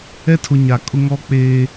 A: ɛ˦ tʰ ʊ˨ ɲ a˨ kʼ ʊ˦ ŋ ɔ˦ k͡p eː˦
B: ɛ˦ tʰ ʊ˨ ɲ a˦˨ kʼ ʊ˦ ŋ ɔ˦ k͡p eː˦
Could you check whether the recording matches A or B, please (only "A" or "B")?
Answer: A